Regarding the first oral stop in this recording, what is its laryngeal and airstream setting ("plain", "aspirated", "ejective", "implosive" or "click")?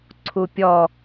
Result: click